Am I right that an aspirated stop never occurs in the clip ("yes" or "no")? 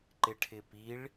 no